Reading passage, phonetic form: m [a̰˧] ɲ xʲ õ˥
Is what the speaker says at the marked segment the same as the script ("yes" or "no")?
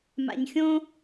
yes